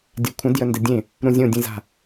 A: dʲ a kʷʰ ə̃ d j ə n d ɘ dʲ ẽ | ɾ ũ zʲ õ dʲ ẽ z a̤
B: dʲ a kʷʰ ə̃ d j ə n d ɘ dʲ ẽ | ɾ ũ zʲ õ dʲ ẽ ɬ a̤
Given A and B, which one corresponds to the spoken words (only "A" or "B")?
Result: A